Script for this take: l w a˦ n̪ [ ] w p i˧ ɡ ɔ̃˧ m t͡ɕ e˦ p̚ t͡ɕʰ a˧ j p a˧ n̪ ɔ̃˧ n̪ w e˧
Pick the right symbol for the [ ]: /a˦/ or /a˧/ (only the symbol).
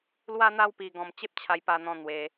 a˦